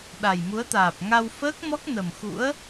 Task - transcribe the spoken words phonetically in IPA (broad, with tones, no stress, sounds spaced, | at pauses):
ɗ a˨˩ j m u˨˦ ə̯ t̪ aː˨˩ p̚ ŋ a˧ w f əː˦˥ k̚ m ɔ˦˥ k̚ n ə˨˩ m x ṵ˧˥ ə̯